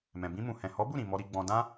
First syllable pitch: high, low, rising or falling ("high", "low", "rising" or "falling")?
low